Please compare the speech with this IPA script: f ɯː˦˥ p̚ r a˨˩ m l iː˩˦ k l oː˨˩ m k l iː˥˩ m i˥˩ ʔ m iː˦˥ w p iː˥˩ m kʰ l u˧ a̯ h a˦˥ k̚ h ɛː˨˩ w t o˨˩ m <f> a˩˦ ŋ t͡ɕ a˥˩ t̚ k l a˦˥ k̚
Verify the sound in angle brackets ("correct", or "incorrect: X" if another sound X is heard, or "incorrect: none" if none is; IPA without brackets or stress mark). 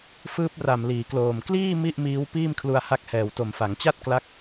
correct